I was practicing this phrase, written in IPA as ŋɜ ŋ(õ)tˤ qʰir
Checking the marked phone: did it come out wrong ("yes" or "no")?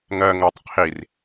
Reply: yes